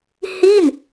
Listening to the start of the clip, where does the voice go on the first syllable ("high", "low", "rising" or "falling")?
falling